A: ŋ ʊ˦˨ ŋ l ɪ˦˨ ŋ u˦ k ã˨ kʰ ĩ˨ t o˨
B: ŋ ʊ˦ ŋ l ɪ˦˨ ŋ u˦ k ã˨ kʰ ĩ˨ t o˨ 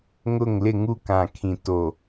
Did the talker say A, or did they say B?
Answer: A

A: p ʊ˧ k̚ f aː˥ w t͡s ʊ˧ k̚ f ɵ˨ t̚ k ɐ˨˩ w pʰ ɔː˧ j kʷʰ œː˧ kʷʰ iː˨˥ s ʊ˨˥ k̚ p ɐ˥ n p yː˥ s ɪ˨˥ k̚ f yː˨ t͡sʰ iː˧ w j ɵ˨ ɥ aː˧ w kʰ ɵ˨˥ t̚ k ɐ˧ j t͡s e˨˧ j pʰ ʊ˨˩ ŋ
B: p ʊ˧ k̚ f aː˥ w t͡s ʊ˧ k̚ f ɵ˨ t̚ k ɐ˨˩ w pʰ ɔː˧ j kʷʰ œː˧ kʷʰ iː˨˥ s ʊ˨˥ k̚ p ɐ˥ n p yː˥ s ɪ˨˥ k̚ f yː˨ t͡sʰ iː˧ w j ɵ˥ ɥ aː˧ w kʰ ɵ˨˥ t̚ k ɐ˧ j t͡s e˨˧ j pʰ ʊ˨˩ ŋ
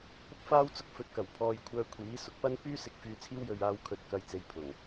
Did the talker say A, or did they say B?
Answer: A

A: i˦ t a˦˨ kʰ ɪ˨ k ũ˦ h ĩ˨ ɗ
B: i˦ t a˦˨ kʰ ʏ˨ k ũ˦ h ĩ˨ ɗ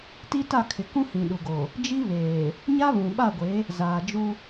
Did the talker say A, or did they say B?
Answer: A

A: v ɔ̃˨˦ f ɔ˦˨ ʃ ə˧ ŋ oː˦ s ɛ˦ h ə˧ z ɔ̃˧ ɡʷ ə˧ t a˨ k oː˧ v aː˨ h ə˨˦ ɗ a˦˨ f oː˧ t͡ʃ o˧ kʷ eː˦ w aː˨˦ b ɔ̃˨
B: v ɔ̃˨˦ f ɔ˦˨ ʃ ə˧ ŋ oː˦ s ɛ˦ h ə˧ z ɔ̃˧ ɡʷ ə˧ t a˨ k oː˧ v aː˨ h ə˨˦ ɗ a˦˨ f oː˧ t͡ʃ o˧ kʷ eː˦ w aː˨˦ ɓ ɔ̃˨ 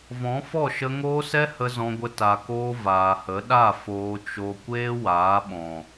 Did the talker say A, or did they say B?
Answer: B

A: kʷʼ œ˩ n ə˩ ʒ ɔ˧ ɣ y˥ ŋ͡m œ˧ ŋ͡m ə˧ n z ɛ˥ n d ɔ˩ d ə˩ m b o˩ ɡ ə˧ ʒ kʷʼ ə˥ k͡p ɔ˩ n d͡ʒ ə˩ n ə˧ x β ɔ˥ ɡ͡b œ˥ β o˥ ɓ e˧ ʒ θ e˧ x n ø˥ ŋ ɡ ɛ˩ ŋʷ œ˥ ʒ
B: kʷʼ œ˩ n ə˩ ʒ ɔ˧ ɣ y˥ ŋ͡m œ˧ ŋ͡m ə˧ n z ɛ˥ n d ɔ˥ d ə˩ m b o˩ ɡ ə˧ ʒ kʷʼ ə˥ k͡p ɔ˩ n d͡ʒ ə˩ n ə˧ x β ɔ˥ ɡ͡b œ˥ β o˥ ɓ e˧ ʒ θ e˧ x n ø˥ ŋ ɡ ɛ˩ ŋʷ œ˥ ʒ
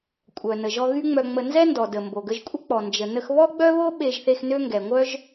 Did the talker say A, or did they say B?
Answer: A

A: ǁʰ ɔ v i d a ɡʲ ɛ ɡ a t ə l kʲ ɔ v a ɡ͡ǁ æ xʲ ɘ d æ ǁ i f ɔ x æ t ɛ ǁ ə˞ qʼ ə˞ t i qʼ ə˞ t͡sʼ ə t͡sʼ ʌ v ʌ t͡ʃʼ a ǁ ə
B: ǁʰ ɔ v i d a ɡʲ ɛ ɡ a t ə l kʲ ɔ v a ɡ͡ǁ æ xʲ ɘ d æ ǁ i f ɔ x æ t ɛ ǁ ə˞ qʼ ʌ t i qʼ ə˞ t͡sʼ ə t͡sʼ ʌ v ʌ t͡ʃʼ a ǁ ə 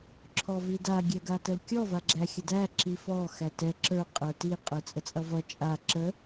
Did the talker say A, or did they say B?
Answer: A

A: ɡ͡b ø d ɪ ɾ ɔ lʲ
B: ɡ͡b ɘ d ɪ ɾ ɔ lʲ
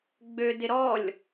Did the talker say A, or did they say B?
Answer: A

